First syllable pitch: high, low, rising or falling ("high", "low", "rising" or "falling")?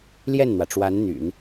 falling